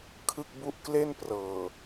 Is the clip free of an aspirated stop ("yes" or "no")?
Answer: no